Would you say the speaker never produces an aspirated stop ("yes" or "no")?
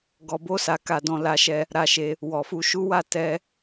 yes